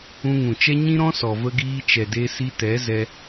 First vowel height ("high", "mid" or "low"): high